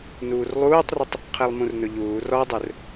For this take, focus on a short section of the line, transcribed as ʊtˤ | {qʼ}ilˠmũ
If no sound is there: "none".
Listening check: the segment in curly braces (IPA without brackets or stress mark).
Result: qʰ